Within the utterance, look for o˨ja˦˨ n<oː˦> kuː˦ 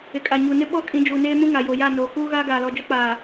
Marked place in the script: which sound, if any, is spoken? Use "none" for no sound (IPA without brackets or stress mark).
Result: oː˨